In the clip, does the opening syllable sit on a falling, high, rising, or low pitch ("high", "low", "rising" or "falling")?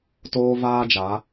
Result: high